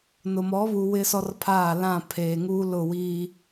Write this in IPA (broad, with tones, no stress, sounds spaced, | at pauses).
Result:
n ʊ˨ m ɔ˨˦ β u˨ w ɪ˦ s ɔ˦ r pʰ aː˦˨ l ã˦˨ pʰ eː˨ ŋ uː˦ l ʊ˦˨ w i˦